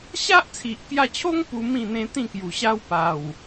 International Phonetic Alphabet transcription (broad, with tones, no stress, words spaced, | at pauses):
ɕa˦ʔt͡sʰi˨ʔkja˧t͡ɕʰo˦ŋ pu˧ mĩ˥˧n̪ẽ˦t̪ĩ˥˧ kju˨˩ɕa˦wpa˨˩w